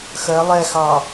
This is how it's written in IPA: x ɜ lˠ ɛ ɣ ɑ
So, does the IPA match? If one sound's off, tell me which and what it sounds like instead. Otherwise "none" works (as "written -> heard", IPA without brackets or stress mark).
ɣ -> x